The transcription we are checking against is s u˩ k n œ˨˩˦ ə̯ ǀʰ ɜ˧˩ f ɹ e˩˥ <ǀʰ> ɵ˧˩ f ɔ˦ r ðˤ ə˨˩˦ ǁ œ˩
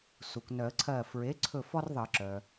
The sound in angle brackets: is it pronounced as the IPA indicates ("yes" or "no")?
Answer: yes